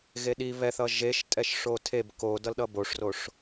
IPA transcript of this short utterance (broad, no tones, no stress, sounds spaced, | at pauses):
ɣ e ɗ i β ɛ θ ʌ ʒ e ʃ tʼ ɛ ʃ ʂ o tʰ e b k o d ʌ l ɗ ʌ b o ʂ r o ʂ